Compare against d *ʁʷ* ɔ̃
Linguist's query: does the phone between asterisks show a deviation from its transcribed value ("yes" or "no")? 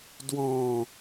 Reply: yes